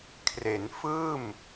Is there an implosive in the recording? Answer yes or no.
no